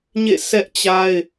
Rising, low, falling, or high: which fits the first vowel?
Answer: falling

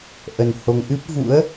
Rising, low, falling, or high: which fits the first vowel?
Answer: low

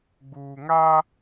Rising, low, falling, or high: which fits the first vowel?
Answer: low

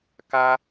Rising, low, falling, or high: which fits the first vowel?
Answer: high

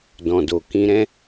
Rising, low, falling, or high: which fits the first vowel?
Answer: low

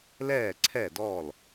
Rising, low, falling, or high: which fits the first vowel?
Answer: falling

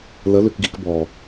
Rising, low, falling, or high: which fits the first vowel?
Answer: rising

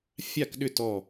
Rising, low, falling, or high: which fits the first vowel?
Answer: falling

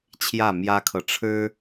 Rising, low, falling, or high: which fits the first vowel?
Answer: falling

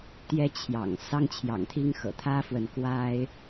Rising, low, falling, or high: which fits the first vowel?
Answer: high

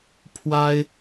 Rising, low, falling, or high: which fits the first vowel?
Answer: high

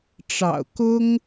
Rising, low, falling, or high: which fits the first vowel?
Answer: low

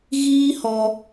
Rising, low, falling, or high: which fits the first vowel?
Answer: high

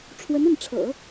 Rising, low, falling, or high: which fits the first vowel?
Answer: rising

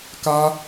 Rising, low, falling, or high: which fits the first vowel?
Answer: high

